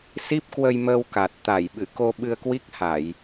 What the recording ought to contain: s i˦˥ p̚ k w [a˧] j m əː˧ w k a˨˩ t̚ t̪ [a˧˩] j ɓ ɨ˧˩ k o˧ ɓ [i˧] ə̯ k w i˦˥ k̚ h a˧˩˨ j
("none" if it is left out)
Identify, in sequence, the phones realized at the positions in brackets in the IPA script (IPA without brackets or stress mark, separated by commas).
ə˧, a˧˩, ɨ˧